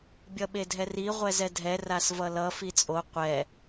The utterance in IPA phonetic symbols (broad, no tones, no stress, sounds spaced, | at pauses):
bʲ ʌ ɓ e dʱ ɛ r i ʁʷ ɛ z ɛ dʱ ɛ r a s v ʌ l ʌ f i t͡sʼ o qʷ ɛ